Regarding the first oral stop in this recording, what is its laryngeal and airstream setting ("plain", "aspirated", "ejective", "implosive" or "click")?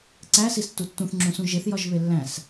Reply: click